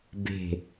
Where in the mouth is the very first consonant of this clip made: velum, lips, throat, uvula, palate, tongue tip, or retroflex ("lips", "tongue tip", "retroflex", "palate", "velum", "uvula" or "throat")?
lips